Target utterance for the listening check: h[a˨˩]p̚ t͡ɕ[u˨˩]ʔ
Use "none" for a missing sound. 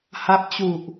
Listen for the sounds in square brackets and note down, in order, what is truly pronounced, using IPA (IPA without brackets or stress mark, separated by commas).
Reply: a˦˥, u˨˩